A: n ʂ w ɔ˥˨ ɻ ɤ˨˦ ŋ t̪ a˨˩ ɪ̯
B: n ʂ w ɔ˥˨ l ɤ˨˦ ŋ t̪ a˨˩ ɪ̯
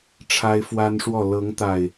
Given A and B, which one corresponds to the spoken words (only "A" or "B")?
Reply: B